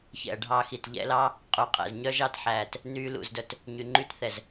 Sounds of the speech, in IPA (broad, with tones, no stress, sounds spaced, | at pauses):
ç ɛ̰˨ ɐ̯ ɖʱ ɑ˧ x i˨ t ʎ ɛ̰˧ l ɑ˦ | qʼ u˨ qʼ ɛ̰˨ z ɲ œ˦ ʒ ɑ˦ t ħ æː˨ t | n yː˧ l ṵ˨ z d œ˨ t | ɲ y˨ ŋ͡ǃ y˦ t θ ɛ˨ z